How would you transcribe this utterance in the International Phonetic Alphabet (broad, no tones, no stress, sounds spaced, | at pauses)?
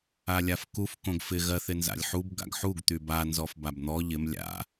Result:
a lʲ a f k u f k õ ɡ f ɪ ɣ ɜ θ ɪ n z a̰ lʲ ħ u b ɡ a̰ ɡ ħ u ɡ t̪ y b a n z ɔ f b a b n̪ ɔ ʎ ɪ m lʲ a̰